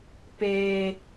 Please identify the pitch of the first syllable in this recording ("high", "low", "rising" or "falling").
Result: low